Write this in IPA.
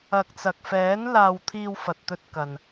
ɐ˨k̚t͡sɐ˨k̚fɛː˨˥n laː˧wt̪ʰiː˧w fɐ˨t̚t̪ɵ˧t̚kɐ˨n

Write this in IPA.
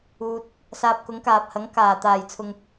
uː˧t̚ | saː˧p̚kʊ˨˥ŋkaː˨p̚hɐ˨˥ŋ kaː˨˩ t̪aː˨˩jt͡sʰʊ˨ŋ

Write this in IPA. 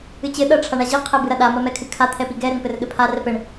ɨt͡ɕɘ ɗɐ ʈ͡ʂʰaɳaʑi qʰɛbɨɾɐɗa mɐmɛkʰɨkʰa t̪ʰɛpiɡɛ ɾɘŋpɘrɠɘpʰa rɛpɘɳ

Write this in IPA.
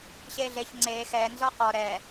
ɕeɮeç ŋ͡ǀe xɛ nzɔqɔ ɾɛ

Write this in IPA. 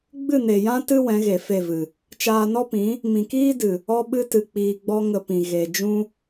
ɡ͡bɨ˦˨ne˨jã˦ tɨ˦ wɛ̃˨˦ɣe˨fe˦˨vɨ˨ | t͡ʃaː˧nɔ˦pĩ˨˦ | mĩ˨kiː˦dɨ˨ | ɔ˦ ɓɨ˧tɨ˨ k͡piː˧ɡ͡bɔ˦ ŋə˧pĩ˨ ɣe˨ d͡ʒũ˦

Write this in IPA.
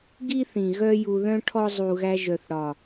ɡi˦θĩ˨ ɣœ˦ju˧ðœ̃˦ ʈʰɔ˦ zˤu˨ɣæ˧ʒœ˨θɽɒ˨

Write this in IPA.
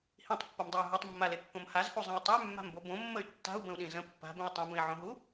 hĩtˤpːɐmdˤɐy̯ ɦɐtˤmːalekːõm hazhuzˤẽi̯ tˤəy̯mːa̤mbo bõmːəy̯ tːa̤u̯bə̃u̯ɗĩ zə̃ pːa̤bẽi̯ tˤĩbə̃i̯ʕõɦu

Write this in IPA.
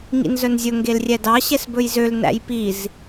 ŋḭnzœnzʲɵ ŋɡelrʲɛdɑ ɕɛsbɵjzøl næ̰jpiz

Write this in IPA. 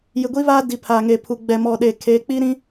jɪ˨ɡʷi˦βaː˦ di˨pʰaː˨ŋe˨pʰu˨ ɡ͡bɛ˨mɔ˨ ɗeː˨kʰe˨˦ k͡pi˦ ɾĩ˦

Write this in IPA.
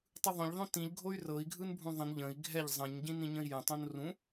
tˤɯðˤõʎ ðˤõtĩʎ ɡʱoy̯rɤi̯ ɡʱɯnbʱũðˤə̃n ʎə̃i̯ ɡʱɛʎ zˤə̃ɲ ɟĩnĩɲə̃i̯jə̃ tˤõnrũ

